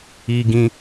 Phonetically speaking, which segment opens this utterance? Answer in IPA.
i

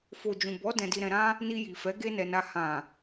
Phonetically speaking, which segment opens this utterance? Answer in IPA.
f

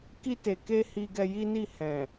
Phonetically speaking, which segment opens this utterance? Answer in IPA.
k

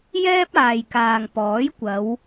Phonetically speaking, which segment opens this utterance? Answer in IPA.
j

